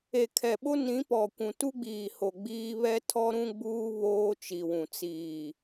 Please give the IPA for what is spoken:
e˨kʰɛ˨ɓo˦ nĩ˨˦pɔ˨kʷũ˨ tu˦ɡ͡biː˨ho˨ ɡ͡biː˦ βɛ˦tʰɔ˦ɾũ˦ɡ͡buː˦ βoː˦t͡ʃi˨wũ˨ t͡siː˨

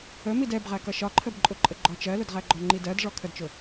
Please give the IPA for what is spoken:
ə midɛbʁæ kʌʃɒǃʰəbǃʼʊ ǃʼəɡ͡ǃɔt͡ʃɜlʊd ʁæɡ͡ǃɔŋ͡ǃidɜd ʐɔkʰədt͡ʃʊ

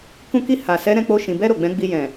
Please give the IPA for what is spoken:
kũ˧ki˧ ha˨sɛ˨˦ ɾɛ̃˧k͡po˧ ʃĩ˨bɛ˧ɾo˨ ɡ͡bɛ̃˨˦ɡ͡bi˧ jɛ̃˨

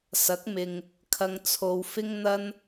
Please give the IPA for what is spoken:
sɐ˨˥k̚mɪ˨ŋ | kʰɐ˧ŋ t͡sʰo˨˧wfɪ˥ŋn̪ɐ˥n

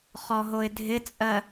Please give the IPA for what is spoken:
χɔɦoɪ̯dʱɪt͡sʼɜ

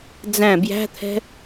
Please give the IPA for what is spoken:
d͡zæ̃ bjæ̤t̪ʰɛ̤

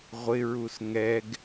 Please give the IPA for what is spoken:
ʁʷɪɹus ŋɛɡ

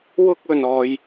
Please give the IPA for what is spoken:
wʊ˥k̚ɵ˧nɔː˧j

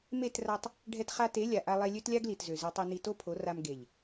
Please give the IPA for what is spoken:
me˦˨tra˧tˤ | ɖʱɛ˧tχa˧te˨˦ lʲa˨ʔa˧lˠe˧ lʲø˦tlʲa˦ɡli˨tzø˨ ze˧tˤe˧ni˧ to˦pʰo˨˦ra˧m ɡe˨ʎ

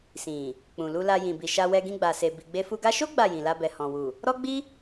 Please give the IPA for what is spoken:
sĩ˨ | k͡pũ˨lu˧la˧ jĩ˨bi˨ ʃa˧wɛ˧ ɡĩ˧ɡ͡ba˨se˨ bi˨ɡ͡be˧fu˧ɡa˦ ʃo˦ ɡ͡ba˦˨jĩ˨la˧bɛ˨ hɔ̃˨wu˨ | ɾɔ˦ɡ͡bi˦

